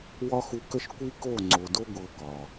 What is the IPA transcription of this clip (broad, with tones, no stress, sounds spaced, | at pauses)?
w ɒ˦ x u˧ k ə˦ ʃ kʷ i˦ k o˦˨ ŋ͡ǀ o˨ d o˦ ɡʷ ɤ˧ k ɒ˨